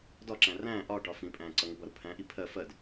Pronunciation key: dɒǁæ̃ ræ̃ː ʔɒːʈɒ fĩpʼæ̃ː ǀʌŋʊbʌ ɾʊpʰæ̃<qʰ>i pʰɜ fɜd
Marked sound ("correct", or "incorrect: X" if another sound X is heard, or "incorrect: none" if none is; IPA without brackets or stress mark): incorrect: ʔ